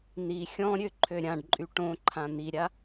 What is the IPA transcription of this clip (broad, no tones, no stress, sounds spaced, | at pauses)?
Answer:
n i xʲ ɔ̃ ɾʲ ø ǃʰ ø ɾʲ ã ɖ ǃʼ y ʈ õ ǃʰ ã n̪ i ɾʲ a